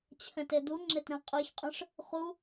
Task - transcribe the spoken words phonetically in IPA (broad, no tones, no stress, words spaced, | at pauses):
t͡ɕʰɛ̃ted̪uŋ͡ǁet ɾɛ̃qʼeçqʼẽʂ | χu